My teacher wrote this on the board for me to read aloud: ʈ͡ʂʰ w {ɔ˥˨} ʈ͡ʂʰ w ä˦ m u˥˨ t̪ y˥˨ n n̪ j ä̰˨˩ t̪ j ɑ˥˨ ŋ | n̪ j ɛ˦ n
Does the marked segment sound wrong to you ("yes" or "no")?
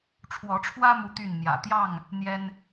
yes